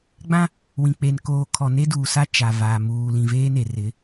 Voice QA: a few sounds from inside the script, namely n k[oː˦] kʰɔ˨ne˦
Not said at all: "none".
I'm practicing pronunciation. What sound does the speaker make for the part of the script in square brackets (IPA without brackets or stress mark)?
oː˨